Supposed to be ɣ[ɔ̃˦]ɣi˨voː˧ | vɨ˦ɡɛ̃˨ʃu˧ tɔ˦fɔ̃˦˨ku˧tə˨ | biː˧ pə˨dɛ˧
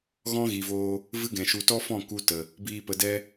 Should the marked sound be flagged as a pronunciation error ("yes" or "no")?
no